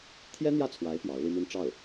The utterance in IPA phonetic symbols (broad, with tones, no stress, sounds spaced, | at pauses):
t̪ʰ j ɛ˥ n̪ j ä˥˩ t͡sʰ w a˧˥ ɪ̯ p j ɑ˧˥ ʊ̯ l i˥ m i˥ n ʈ͡ʂ ɑ˥˩ ʊ̯